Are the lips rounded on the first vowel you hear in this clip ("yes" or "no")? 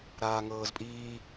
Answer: no